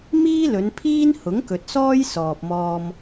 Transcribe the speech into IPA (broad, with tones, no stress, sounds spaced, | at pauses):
m iː˥ l ɵ˨˧ n pʰ iː˥ n h ʊ˨˥ ŋ k ɵ˨ t̚ s ɔː˥ j s ɔː˨ p̚ m ɔː˧ m